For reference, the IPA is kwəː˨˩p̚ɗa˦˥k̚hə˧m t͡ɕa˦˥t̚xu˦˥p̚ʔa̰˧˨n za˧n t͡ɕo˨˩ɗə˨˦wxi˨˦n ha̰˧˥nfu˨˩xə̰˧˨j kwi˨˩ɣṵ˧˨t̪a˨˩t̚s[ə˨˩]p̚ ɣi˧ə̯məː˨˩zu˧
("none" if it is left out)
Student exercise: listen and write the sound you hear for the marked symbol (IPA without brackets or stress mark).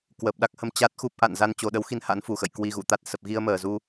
ə˨˩